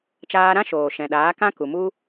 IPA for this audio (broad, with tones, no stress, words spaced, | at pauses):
t͡ʃaː˧ɾã˦ʃoː˨ ʃɛ̃˨ɗaː˨˦kã˦ku˨ mu˦